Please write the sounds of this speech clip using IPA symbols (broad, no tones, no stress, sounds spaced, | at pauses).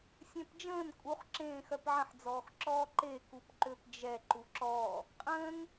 sʲ ɛ̃ p d͡ʒ ə̃ː n kʼ u χ ǁ ẽː x œ p ʕ ə̃ ħ d͡z ɔː x ǁ ɔː ǃ e k u p ǃ ø p d͡ʒ ɛ ǃ u ǁ ɔː | qʼ ə̃ː ŋ